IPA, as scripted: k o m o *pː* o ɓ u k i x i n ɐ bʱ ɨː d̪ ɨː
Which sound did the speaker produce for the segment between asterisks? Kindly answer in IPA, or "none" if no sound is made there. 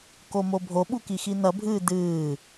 bʱ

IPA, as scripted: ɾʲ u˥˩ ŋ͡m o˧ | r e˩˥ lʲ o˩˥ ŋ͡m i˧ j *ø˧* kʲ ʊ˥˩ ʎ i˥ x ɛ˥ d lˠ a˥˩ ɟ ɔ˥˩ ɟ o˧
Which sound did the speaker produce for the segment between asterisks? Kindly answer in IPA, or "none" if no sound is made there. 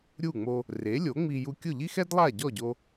u˧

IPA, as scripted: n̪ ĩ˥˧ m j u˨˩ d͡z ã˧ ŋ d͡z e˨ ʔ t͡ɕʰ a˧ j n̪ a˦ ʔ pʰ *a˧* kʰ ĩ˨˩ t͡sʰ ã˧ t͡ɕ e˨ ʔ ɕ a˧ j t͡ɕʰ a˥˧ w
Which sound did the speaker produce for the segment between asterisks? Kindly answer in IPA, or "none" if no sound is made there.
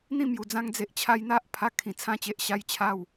a˧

